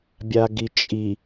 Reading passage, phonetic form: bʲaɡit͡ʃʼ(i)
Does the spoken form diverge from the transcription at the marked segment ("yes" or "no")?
no